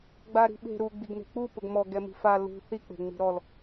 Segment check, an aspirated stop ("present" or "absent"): absent